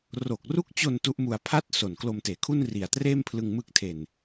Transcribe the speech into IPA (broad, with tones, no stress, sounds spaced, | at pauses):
r o˨˩ k̚ r u˦˥ k̚ t͡ɕ o˧ n t u˦˥ ʔ m u˧ a̯ pʰ a˥˩ t̚ s o˨˩ n k l o˧ m t eː˨˩ kʰ u˥˩ n r i˨˩ a̯ t r eː˥˩ m pʰ l ɯ˧ ŋ m ɯ˥˩ k̚ tʰ e˧ n